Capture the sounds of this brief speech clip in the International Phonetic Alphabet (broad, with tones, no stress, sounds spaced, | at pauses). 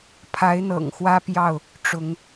pʰ a˨˦ ɪ̯ n̪ ɤ̰˨˩ ŋ x w ä˦ p j ɑ˥˨ ʊ̯ | ʈ͡ʂ ʊ˨˦ ŋ